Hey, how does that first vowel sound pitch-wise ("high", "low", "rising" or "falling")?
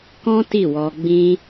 high